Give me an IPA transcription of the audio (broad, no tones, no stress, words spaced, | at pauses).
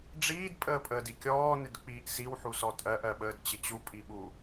ɖ͡ʐiːdpʼəːpʼəːdi kʲɔːnɪdk͡piːʔ siwħusɔ tʼɜʔɜɓəːdt͡ɕɪ t͡ɕupʼiɓu